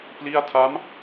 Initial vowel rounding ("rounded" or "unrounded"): unrounded